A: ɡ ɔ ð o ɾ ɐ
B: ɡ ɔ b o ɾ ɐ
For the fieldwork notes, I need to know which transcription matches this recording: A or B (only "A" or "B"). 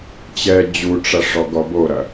B